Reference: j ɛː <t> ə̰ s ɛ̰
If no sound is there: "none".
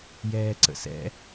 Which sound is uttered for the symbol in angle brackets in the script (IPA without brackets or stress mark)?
ǀ